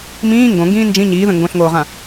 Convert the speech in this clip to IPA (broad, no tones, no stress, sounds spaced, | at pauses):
m ĩː ŋ ɡ õ ŋ ɡ ĩː n d͡ʒ ĩ ɲ iː ð ə̃ ŋ ɡ õ ɬ ŋ oː ʁ ã